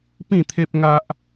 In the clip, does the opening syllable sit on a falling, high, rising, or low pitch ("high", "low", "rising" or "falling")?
falling